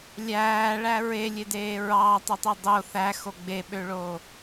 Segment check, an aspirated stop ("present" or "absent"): absent